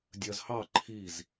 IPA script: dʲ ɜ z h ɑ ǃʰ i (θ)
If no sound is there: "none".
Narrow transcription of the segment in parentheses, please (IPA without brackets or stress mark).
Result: z